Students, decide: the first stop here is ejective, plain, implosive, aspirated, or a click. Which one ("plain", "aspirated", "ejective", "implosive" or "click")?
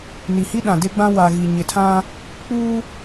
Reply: implosive